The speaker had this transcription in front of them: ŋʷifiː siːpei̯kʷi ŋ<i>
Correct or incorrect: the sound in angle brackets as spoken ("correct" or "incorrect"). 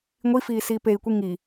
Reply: correct